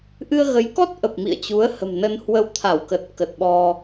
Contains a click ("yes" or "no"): no